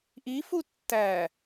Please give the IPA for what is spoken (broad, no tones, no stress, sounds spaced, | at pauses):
ʔ i f u tː æ